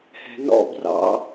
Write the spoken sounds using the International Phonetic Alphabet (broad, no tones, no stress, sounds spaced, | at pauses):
h ɛ̤ n ɔ̰ b r ɑ̰